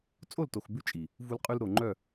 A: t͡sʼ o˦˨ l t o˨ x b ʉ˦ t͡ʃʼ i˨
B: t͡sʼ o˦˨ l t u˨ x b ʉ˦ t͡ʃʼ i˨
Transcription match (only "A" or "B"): A